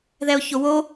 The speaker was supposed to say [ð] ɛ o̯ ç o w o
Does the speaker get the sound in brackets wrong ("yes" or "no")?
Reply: no